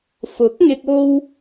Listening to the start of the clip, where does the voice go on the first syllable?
rising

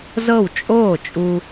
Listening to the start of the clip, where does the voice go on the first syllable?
falling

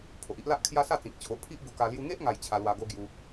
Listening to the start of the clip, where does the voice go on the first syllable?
low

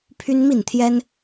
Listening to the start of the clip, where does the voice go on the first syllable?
high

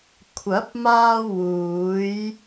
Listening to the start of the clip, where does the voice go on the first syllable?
rising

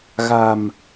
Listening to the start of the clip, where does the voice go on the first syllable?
low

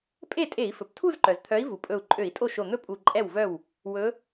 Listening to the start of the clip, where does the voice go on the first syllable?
falling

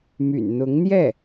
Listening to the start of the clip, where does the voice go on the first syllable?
low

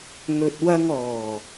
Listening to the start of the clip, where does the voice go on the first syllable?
low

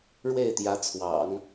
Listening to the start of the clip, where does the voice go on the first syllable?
falling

